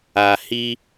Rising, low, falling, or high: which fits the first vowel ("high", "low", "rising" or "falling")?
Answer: low